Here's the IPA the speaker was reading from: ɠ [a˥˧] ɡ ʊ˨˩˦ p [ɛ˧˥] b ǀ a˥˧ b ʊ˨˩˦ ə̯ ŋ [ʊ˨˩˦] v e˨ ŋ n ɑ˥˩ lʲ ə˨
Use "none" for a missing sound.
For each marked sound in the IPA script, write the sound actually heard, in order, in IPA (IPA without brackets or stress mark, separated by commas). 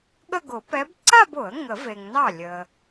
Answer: ə˥˧, ɛ˧˥, ə˨˩˦